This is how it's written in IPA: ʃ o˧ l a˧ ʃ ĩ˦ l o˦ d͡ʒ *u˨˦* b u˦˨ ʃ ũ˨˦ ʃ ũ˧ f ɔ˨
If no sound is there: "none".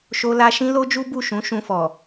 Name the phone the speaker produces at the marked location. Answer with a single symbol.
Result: u˦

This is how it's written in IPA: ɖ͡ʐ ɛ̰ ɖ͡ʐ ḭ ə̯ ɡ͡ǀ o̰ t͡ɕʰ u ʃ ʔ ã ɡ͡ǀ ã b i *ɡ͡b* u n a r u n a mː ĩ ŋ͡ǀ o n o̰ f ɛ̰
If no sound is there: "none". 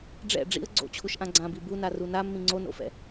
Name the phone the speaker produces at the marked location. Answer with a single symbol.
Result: b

